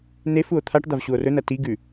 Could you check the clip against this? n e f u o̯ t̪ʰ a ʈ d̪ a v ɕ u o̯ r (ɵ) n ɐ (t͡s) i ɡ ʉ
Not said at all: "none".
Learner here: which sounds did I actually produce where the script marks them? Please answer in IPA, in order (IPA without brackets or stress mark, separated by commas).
ɵ, t